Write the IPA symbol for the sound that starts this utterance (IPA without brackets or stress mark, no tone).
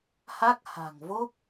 h